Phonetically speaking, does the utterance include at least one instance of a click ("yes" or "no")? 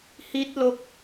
no